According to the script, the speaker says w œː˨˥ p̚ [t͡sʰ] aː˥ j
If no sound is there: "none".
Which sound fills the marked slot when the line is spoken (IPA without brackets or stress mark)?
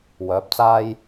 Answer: t͡s